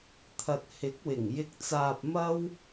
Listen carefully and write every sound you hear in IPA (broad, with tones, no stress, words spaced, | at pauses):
t̪ʰɐ˨t̚hɪ˨˥k̚wɪ˨˩ŋ jɪ˧k̚t͡saː˧p̚mɐ˥w